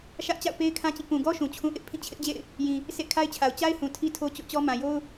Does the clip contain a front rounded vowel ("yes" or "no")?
no